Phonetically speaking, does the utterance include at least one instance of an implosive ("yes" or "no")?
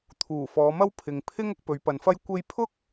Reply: no